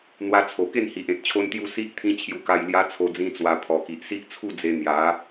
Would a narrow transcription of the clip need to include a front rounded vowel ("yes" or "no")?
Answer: no